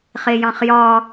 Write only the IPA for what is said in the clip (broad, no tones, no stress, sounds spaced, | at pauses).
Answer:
χ e j ɑ̃ χ j ɒ